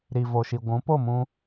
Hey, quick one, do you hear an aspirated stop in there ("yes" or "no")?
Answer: no